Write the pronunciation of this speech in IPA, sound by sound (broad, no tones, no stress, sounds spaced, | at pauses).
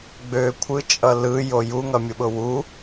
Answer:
ɡ͡b ø kʷʰ ɯ t͡ʃʼ ʌ l ɯ j o j u ŋ ʌ mʲ ʊ ɓ ʊ w u